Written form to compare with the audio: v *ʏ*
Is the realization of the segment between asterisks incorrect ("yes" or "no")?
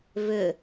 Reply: no